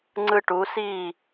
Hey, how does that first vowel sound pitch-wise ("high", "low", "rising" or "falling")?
high